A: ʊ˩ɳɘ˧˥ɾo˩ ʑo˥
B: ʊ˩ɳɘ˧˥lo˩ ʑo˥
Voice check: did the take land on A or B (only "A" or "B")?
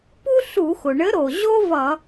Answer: A